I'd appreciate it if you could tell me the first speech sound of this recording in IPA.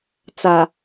t͡s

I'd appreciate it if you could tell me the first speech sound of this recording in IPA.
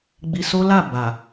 ɡ͡b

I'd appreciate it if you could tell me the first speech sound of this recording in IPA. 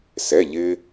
s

